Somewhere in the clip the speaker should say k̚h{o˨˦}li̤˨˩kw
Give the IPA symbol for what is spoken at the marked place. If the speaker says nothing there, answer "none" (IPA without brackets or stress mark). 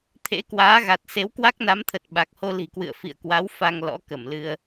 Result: o˧